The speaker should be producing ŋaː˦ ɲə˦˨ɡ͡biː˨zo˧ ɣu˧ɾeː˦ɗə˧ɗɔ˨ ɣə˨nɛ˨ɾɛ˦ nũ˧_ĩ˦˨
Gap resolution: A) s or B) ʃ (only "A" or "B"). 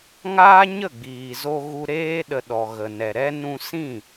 A